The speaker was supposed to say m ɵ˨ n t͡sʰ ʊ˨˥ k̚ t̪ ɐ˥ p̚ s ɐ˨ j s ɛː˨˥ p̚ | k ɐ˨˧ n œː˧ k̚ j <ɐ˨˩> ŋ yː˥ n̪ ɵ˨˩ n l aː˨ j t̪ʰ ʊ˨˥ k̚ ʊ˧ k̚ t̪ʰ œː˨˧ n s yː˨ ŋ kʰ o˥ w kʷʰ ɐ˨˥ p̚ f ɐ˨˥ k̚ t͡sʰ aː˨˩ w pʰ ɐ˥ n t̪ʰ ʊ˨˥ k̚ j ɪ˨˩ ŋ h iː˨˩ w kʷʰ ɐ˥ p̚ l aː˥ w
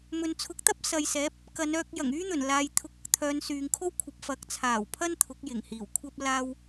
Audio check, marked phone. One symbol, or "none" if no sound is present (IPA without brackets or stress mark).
ɐ˨˩